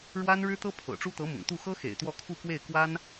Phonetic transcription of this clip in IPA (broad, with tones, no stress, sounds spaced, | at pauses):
ɻ w a˥ n ɻ ɻ̩˥ t̪ ɤ˥ pʰ ɤ̰˨˩ ʈ͡ʂ u˥ t̪ ɤ˧˥ m ʊ̰˨˩ ŋ t̪ u˥˩ x ɤ˥ x ḛ˨˩ ɪ̯ t̪ w ɔ˥˧ kʰ u˥˧ k w e˥˩ ɪ̯ k w a˥ n